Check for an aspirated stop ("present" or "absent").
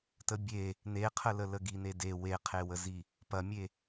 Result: present